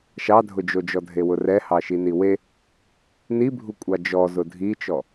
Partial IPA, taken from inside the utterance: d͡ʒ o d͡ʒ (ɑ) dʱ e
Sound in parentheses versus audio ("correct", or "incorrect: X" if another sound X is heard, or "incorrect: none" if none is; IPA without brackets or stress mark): incorrect: ɔ